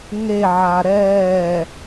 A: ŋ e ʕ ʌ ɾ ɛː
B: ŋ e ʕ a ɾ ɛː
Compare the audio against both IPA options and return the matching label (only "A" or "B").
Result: B